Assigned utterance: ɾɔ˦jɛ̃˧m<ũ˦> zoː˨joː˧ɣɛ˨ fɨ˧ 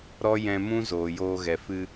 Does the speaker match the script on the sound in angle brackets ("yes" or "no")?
yes